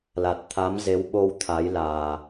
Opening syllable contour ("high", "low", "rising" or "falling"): low